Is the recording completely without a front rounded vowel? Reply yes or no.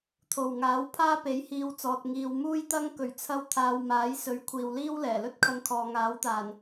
yes